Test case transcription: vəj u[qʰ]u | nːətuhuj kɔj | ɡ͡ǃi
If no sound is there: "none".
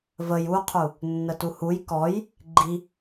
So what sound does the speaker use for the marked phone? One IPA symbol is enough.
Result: qʰ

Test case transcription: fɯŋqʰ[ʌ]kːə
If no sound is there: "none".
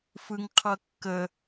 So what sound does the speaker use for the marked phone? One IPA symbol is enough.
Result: ʌ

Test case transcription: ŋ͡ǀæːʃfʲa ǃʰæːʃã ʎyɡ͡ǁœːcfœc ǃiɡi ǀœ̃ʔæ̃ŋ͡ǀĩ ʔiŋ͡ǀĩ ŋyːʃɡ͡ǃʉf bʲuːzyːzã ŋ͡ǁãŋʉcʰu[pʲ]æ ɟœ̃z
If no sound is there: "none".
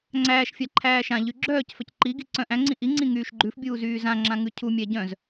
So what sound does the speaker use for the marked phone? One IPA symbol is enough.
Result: mʲ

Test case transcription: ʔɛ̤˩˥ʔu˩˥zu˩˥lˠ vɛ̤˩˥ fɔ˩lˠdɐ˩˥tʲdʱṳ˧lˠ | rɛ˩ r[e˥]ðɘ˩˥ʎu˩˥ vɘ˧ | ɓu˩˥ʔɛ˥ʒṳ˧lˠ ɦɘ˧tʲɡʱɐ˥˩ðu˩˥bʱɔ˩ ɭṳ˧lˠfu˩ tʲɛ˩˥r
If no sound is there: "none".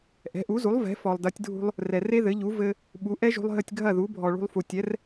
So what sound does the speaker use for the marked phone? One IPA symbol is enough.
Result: e˥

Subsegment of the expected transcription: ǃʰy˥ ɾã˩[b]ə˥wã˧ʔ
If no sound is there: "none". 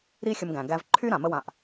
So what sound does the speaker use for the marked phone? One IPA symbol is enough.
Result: m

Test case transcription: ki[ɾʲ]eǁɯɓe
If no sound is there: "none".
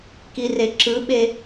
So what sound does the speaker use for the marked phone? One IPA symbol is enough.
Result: r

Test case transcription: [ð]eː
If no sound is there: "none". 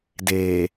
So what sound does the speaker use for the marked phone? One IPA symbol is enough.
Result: d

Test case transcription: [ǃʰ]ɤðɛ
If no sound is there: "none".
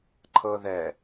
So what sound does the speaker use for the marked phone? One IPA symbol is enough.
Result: ǃʰ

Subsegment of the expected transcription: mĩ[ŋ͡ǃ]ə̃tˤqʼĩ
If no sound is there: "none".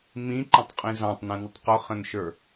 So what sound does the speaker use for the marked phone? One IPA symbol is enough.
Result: ǃ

